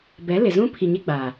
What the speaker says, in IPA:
b ɛ˨˦ l ɪ˨ z ũ˦ pʰ i˨ ɲ e˦ ɡ͡b a˨

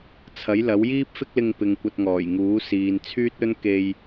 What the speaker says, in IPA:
t͡sʰ ɐ˨˥ j l ɐ˨˥ w j iː˥ p̚ f ɪ˥ k̚ l ɪ˧ ŋ p ɪ˨ ŋ kʷ ɐ˧ t̚ ŋ ɔː˨˩ j ŋ uː˨˥ s iː˨ n t͡sʰ yː˥ t̚ ɵ˥ n k e˧ j

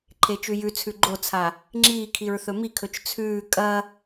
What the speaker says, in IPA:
ǃʰ e t͡ʃ ʉ j ʉ t͡sʰ ʉ ɡ͡ǃ o t͡sʰ a | ŋ͡ǁ iː kʰ i ɹ θ ɵ m i kʰ ɵ t͡ʃ t͡sʰ ʉː kʼ ɐ

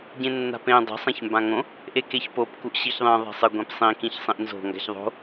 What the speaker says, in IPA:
ɟ ẽ nː a̤ p ẽ dˤ e̤ sˤ ã ç m b ã ŋ õ | ʔ e k e ç p o p k u ʔ ɕ i ç ðˤ ĩ ðˤ e̤ sˤ ɨ ɡʷ ẽ p sˤ ĩ k ĩ ç sˤ ĩ ʔ n z o̤ ŋ ɡ a̤ ç ðˤ o̤

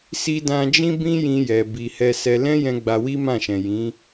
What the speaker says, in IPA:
s i˧ d ã˧ d͡ʒ ĩ˦ b ĩ˦ j ĩ˧ j ɛ˨ b i˨ h ɛ˧ s ɛ˧ l ɛ̃˦ j ɛ̃˧ ɡ͡b a˧ w i˦ m ã˦˨ ʃ ɛ̃˨ j ĩ˨˦

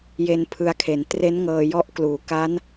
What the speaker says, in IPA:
j e˧ n pʰ ɯ˧ a̯ kʰ e˩˦ n t r e˦˥ n ŋ ɤː˧ j ɔ˥˩ ʔ k l uː˩˦ k a˦˥ n

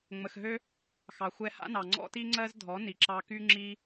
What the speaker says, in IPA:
ŋ͡m ə˨ x ɦ ø˦ | x ɑ˨ xʷ ɛ˧ h a̰˦ n ɑ˨ ŋ͡ǀ ɔ̰˦ t i˦ ŋ͡ǀ ɜ˦ z dʱ ɔ˨˦ n i˨ ǁ ɑ˧ k y˦ ŋ͡ǁ i˦

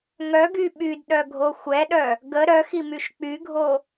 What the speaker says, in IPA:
ŋ œ ɡ y ɓ y d ɗ œ ɡʱ o xʷ ɛ ɗ œ | ɡ ə ɾ œ x i m y ʃ k͡p y ɡʱ o

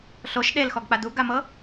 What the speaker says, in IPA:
ɬ o ʃ ɗ e l x ɔ ɡ k͡p a d u ɡ a m ɤ

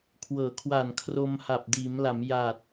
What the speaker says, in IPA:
kʰ w ɤː˩˦ kʰ w a˨˩ n kʰ r o˧ m h a˨˩ p̚ d iː˩˦ m l a˩˦ m j aː˨˩ t̚

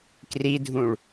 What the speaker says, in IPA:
k r i dʱ ũ ɭ

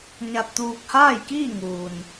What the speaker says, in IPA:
ɲ a˧ t̚ t̪ uː˧ k̚ h aː˥˨ j k iː˥˨ ŋ uː˩ n

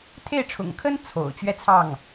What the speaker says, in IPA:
t̪ʰ e˥˩ ɪ̯ ʈ͡ʂʰ ʊ̰˨˩ ŋ kʰ ə˥ n t͡sʰ o̰˨˩ ʊ̯ t͡ɕ ɥ ɛ˥˧ t͡sʰ ɑ˥˩ ŋ

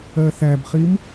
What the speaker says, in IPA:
ɜ θ æ b χ i m

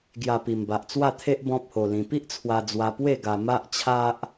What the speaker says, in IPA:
ɡ j a˨˩ p i˨˩ m b a˨ ʔ t͡s w a˥˧ t̪ʰ e˦ ʔ b ɔ̃˦ p̚ h o˧ l ĩ˧ p i˦ ʔ t͡sʰ w a˧ d͡z w a˧ p w e˥˧ ɡ a˧ m a˦ ʔ t͡ɕʰ a˦ ʔ

